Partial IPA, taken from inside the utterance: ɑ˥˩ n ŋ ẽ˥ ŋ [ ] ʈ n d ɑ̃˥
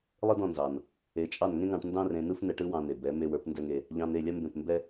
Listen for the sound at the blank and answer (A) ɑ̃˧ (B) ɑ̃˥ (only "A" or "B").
A